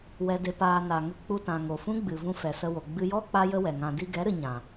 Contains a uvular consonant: no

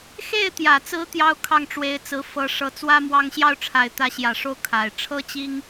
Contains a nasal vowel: no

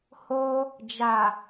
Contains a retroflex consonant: no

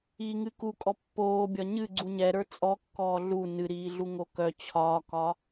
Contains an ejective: yes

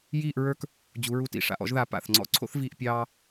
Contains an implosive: no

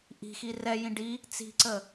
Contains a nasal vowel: yes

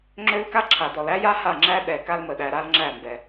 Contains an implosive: yes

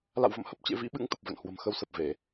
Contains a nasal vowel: no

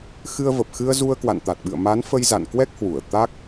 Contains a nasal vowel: no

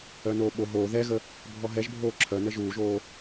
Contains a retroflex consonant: no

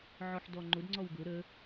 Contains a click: yes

